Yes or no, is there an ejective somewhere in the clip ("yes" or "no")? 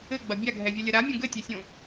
no